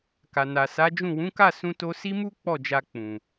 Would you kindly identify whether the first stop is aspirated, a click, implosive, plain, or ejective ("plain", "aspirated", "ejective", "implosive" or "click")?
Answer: plain